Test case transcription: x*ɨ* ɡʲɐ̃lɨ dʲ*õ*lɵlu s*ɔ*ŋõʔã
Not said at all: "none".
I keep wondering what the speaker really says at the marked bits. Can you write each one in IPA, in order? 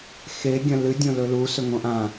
e, õ, ɵ

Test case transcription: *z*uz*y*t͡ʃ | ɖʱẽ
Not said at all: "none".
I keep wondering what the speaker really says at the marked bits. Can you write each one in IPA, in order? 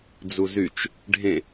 d͡z, y

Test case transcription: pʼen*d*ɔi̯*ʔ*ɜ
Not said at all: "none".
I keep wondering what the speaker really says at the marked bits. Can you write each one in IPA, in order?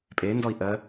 d, ʔ

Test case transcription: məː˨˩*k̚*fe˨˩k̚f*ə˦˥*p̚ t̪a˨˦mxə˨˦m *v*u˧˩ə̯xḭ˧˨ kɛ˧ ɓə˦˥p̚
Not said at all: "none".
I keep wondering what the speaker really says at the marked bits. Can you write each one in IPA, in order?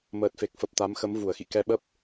t̚, ə˨˩, v

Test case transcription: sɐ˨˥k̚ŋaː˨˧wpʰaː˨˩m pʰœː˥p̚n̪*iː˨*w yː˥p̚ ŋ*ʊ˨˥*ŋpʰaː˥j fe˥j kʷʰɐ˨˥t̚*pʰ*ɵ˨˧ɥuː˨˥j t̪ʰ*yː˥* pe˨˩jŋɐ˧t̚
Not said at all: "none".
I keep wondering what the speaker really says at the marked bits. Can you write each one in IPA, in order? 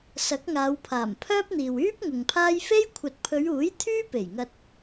iː˨, ʊ˨, pʰ, yː˥

